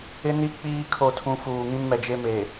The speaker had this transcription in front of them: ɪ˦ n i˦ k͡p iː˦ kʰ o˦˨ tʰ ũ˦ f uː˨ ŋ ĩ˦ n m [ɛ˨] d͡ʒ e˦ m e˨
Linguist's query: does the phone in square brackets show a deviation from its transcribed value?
no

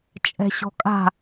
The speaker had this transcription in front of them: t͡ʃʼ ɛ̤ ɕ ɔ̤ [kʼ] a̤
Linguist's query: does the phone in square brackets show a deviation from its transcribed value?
no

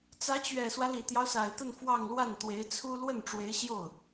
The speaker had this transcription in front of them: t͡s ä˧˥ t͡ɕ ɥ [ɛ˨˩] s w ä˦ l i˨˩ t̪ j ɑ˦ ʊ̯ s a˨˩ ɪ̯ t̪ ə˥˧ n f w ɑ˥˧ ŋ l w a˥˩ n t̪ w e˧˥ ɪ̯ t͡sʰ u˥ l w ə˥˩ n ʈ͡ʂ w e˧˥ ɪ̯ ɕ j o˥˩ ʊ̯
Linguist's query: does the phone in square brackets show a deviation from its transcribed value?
no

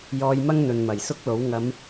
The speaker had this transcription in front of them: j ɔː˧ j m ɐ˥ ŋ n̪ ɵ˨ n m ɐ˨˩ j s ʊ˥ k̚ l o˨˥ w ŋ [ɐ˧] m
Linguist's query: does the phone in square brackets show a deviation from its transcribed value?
yes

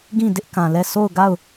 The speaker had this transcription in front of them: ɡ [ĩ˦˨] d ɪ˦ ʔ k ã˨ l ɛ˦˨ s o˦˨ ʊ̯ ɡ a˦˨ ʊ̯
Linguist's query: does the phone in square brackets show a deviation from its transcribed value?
no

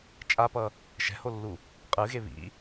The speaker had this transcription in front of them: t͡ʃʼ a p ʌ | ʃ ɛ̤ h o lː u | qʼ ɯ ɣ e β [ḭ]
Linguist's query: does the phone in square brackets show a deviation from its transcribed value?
no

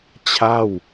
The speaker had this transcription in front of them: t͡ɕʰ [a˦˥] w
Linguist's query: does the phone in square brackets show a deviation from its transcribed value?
yes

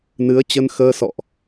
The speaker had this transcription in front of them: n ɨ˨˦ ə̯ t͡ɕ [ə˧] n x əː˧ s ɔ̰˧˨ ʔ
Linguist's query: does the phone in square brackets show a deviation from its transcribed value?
no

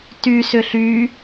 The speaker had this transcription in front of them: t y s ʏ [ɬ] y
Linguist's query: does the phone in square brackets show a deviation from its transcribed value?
no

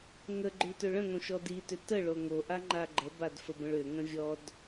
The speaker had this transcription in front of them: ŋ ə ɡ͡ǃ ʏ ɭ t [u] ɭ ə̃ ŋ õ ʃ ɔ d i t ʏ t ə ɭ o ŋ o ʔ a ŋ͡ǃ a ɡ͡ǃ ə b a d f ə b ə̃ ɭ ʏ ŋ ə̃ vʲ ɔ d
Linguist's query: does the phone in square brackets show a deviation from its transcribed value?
yes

